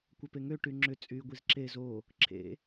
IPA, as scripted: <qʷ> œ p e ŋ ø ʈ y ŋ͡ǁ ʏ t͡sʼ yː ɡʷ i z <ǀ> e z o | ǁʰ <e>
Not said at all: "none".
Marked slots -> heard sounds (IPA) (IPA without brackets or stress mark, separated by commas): kʷ, ǁ, ḛ